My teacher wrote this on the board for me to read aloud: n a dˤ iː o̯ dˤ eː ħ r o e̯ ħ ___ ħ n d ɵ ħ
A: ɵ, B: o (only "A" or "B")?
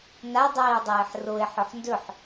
A